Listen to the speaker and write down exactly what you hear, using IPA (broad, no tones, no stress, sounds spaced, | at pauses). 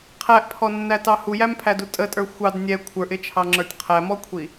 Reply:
qʰ æ ʔ pʰ ɔ nː æ t ɑ h u j æ m pʰ æ d u tʼ ə tʼ ə˞ xʷ ɑ d nʲ ɛ kʷʰ ə˞ ʔ ɪ t͡ʃʰ ɑ ŋ͡ǁ ə˞ tʲ qʰ æ m ɔ kʷʰ i